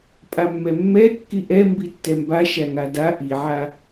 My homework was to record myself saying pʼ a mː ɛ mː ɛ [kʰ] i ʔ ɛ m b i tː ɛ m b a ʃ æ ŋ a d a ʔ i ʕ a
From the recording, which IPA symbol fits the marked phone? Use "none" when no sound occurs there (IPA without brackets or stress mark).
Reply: kː